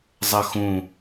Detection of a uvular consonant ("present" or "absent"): absent